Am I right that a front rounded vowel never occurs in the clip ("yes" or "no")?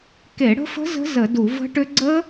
no